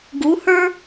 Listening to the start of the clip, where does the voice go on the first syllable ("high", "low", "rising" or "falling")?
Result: rising